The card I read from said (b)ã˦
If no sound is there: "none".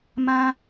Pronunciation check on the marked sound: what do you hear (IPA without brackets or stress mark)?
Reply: m